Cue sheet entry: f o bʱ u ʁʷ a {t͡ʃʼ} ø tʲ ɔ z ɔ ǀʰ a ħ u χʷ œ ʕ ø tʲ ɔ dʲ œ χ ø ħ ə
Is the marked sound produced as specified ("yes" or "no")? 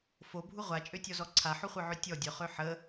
yes